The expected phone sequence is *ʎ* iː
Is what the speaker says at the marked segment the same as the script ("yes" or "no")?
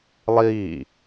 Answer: no